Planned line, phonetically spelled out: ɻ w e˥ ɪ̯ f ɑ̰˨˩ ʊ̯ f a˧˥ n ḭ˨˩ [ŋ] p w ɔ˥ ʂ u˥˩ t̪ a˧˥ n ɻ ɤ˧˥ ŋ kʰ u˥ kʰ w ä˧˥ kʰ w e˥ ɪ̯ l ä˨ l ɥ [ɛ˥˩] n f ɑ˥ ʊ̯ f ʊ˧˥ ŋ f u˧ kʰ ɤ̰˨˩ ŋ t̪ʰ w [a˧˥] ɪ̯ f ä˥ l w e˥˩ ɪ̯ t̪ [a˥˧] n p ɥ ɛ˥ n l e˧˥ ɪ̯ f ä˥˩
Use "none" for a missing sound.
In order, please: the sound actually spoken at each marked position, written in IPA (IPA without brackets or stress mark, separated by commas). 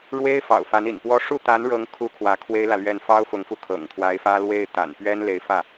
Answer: n, ɛ˥˩, a˧˥, a̰˨˩